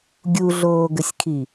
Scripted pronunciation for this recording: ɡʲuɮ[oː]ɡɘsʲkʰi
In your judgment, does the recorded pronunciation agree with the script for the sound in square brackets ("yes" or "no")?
yes